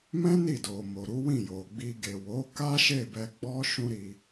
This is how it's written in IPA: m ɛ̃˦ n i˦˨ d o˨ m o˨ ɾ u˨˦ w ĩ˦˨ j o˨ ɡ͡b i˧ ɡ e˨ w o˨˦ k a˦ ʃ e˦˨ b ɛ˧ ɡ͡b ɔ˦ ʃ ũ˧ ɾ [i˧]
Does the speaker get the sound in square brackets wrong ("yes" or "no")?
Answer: no